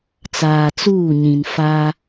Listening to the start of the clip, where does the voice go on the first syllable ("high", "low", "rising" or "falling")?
low